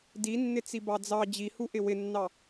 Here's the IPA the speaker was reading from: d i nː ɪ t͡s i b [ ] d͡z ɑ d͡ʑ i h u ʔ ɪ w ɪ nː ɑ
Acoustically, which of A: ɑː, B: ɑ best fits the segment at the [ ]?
B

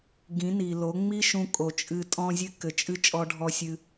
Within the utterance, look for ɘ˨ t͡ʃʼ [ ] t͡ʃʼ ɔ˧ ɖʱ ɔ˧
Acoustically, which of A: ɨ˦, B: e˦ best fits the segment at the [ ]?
A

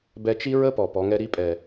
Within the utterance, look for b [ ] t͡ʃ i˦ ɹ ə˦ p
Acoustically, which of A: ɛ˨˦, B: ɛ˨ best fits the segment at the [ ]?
B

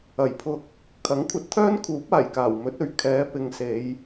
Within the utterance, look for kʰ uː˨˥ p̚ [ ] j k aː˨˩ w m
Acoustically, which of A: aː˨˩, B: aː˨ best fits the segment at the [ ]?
A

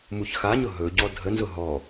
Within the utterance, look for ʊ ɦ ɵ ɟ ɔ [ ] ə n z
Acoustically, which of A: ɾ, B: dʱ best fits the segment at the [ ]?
B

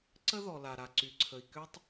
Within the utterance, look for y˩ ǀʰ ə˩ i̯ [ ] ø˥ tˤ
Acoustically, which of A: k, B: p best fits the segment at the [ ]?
A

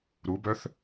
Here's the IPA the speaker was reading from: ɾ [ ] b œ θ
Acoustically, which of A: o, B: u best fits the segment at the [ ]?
B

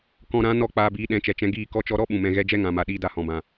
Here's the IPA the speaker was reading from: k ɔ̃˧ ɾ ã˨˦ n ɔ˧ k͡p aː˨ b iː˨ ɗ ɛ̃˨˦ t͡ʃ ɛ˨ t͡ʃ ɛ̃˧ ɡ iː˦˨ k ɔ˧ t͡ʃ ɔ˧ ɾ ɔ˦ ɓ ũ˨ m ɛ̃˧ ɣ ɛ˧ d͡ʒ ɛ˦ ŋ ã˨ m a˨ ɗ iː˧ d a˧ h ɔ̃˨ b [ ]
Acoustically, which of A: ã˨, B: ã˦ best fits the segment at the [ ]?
A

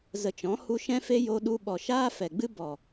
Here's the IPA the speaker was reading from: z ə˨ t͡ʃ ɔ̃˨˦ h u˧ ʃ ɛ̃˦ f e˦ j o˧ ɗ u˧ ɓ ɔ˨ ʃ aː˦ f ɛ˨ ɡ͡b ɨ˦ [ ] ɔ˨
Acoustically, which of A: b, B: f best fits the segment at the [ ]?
A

